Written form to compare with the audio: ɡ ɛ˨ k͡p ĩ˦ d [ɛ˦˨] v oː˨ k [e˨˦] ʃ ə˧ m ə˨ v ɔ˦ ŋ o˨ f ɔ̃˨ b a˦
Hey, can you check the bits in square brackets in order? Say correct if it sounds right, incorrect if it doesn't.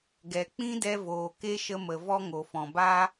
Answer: incorrect, incorrect

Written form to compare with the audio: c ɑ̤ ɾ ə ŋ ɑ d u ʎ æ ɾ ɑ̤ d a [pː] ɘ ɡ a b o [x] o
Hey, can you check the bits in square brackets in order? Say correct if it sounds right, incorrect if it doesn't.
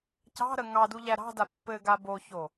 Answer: correct, incorrect

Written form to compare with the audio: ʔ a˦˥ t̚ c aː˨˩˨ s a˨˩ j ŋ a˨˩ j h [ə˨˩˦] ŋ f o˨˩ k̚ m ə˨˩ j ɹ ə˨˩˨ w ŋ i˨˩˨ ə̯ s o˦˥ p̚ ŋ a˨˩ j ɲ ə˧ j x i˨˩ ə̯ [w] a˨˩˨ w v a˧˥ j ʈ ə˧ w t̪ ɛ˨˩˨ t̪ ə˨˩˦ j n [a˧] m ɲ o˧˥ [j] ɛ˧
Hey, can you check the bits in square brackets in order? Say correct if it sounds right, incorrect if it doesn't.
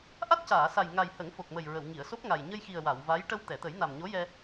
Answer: correct, correct, incorrect, correct

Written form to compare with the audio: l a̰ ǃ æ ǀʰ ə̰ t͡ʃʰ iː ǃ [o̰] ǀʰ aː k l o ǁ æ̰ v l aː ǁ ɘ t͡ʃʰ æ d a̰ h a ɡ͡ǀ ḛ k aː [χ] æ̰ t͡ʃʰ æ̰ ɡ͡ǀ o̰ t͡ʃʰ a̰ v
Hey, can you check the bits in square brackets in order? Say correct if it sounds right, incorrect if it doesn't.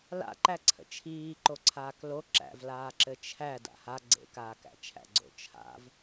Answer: incorrect, incorrect

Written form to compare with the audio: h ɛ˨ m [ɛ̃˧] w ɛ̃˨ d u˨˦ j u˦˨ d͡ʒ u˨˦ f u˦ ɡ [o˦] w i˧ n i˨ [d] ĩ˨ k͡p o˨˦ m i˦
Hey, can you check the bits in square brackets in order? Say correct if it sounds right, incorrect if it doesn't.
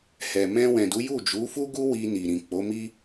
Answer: correct, incorrect, incorrect

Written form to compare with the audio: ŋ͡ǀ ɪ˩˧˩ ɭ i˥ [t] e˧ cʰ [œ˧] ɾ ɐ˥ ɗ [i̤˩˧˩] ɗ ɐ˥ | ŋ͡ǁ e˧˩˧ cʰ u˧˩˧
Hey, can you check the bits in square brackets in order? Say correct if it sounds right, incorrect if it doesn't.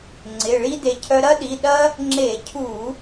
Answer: incorrect, correct, incorrect

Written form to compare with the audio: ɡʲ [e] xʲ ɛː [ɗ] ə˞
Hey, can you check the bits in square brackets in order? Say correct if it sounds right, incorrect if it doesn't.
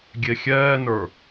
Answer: correct, incorrect

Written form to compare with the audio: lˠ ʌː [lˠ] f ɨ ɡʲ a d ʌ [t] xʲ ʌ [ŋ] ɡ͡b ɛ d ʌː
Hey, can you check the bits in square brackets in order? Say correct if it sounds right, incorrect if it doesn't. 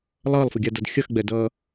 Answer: correct, incorrect, incorrect

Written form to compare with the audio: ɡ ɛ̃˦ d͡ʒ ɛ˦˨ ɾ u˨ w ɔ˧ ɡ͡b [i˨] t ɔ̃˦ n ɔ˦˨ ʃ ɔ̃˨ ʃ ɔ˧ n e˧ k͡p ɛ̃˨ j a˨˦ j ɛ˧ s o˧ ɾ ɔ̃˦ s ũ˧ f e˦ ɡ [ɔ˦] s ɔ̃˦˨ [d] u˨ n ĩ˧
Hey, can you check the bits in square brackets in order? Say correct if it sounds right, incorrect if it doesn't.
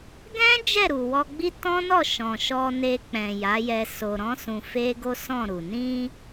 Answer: incorrect, incorrect, incorrect

